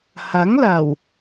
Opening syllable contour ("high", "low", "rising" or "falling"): rising